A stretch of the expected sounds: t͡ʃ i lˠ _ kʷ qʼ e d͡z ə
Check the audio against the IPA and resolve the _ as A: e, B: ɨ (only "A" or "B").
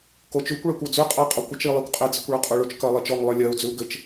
A